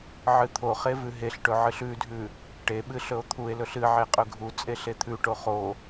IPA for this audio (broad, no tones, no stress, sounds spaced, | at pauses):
ʕ ɨ t̪ʰ o χ e v ʉ ɦ e ɬ ʈ ɵ ʕ ɨ ɬ ʉ dʱ ʉ | ʈ e ɓ ɨ ɬ ɵ o̯ t̪ʰ u e̯ l ɵ ɬ ɨ ʕ e qʼ ɵ ɡʱ u t͡sʼ e ɬ e t̪ʰ ʉ ʈ o χ o